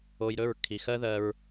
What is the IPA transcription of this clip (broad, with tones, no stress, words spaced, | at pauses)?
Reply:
o˧jɾɵ˦˨ɹ kʰi˨xɜ˦ðɜ˧ɹ